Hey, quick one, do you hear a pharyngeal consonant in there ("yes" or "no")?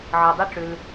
yes